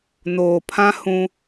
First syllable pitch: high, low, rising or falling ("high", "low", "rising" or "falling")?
low